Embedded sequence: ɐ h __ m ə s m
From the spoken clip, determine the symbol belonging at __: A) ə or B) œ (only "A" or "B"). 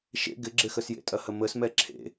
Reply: A